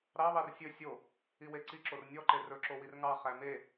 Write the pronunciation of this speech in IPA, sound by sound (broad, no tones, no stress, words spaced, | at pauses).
ɾɑβɑr sʲɵ sʲo | iweǀiǁor nʲɔ ǃerɵǁo wirŋɑ χæme